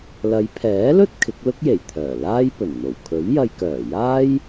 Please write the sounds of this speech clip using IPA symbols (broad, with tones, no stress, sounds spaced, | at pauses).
l ɐ˨˧ j pʰ ɛː˨˥ l ɵ˥ t̚ kʰ ɪ˨˥ k̚ l ʊ˥ k̚ j e˨˩ j t̪ʰ œː˨˩ l aː˥ j p ɵ˨˩ n n̪ o˨˩ w kʰ ɵ˨˥ ɥ j ɐ˧ j k œː˨˩ j aː˥ j